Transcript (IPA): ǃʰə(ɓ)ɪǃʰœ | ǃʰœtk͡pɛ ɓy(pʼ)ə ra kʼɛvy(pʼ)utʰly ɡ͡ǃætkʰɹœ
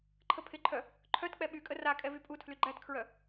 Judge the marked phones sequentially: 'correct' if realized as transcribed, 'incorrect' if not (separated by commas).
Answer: incorrect, incorrect, correct